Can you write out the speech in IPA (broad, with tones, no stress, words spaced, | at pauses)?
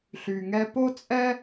ɬy˩ŋɛ˧ po˥t͡sʼɛ˥